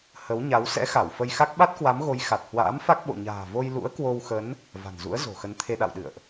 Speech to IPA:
h ə˨˦ w ɲ a˨˦ w s ɛ̰˧˥ x a˧˩ w f ə˧ j x a˦˥ k̚ ɓ a˦˥ t̚ k w a˨˦ m ɣ o˨˦ j x a˨˩ t̚ h w a̰ː˧˥ m f a˦˥ k̚ ɓ o̰˧˨ ɲ a̤ː˨˩ v o˧ j l ṵ˧˥ ə̯ k w o˧ w x ə˨˦ n | v a̤˨˩ n z ṵ˧˥ ə̯ z o̤˨˩ x ə˨˦ n t̪ʰ e˧ ɗ a̰˧˨ w ɗ ɨ̰˧˨ ə̯ ʔ

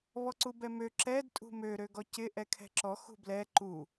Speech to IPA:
β ɔ ǀ u b ɛ m ø ǁ ɛ d tʼ ṳ m ø ɾ ø ɡ ɔ c ɪ ʔ ɛ kʰ ɛ̤ ǁ ɔ x ṳ b l ɛ ǃ u

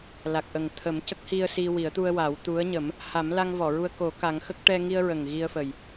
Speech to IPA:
l a˨˩ k̚ ʔ ə˨˩ ŋ t̪ʰ ə˨˩˦ m c ə˦˥ k̚ h i˧ ə̯ s i˧ w i˨˩˦ ə̯ t̪ u˧ ə̯ w a˨˩˦ w t̪ u˧˥ ə̯ ɲ ə˨˩˦ m | h a˨˩˦ m l a˧ ŋ v ɔ˨˩˨ ɹ u˧ ə̯ k o˨˩˦ k a˨˩˦ ŋ x ə˦˥ k̚ ʈ ɛ˧ ŋ i˧ ə̯ ɹ ə˨˩ ŋ ɣ i˧ ə̯ f ə˨˩ j

